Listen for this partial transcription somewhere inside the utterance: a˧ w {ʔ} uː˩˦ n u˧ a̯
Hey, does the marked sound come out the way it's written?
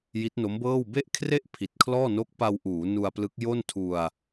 yes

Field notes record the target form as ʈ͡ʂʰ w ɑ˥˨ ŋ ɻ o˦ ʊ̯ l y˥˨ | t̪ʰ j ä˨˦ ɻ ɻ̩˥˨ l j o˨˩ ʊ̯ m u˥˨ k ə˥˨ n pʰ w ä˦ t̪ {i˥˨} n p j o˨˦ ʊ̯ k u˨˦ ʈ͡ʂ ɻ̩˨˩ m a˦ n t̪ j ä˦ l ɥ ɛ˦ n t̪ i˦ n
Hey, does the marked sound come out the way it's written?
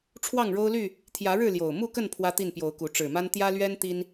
yes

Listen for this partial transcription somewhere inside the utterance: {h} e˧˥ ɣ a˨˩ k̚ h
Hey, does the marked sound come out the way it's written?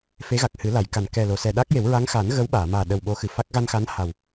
no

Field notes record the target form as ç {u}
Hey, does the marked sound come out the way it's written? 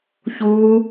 no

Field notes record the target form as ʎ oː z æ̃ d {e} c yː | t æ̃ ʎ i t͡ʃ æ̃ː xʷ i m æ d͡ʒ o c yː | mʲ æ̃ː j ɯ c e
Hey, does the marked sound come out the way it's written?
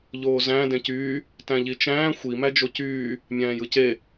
no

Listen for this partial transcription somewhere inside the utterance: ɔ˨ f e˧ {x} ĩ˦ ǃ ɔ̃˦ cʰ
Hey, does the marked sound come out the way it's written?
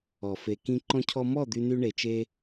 no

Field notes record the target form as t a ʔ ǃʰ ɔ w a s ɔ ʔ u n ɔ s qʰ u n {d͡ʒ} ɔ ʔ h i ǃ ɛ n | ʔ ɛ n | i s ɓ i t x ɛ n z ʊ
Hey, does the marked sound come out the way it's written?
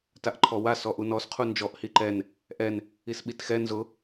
yes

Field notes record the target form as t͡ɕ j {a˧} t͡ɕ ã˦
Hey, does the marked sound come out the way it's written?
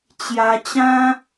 yes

